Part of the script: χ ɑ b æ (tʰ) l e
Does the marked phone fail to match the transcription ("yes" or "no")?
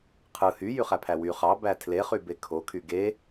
no